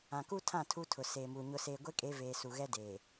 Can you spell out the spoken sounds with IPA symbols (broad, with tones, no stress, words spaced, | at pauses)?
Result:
ã˨ku˦tʰã˦˨ tʰu˦tʰʊ˨ seː˨mu˨ ɲʊ˨seː˨ɡʷe˦kʼe˨˦ veː˨su˨ ɣɛ˦deː˨